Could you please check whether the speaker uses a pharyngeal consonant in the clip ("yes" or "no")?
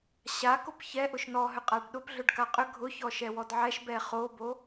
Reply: yes